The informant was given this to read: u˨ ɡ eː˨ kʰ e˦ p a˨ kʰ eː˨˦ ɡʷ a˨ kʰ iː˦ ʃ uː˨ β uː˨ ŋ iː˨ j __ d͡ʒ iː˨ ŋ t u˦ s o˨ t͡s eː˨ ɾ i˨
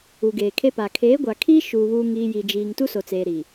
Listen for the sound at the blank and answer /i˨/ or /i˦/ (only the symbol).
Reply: i˨